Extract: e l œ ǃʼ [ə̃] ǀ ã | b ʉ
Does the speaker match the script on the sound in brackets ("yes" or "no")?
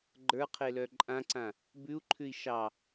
no